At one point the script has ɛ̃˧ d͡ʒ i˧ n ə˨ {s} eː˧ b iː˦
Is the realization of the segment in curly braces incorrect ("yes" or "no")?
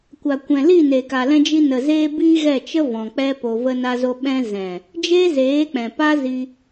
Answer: yes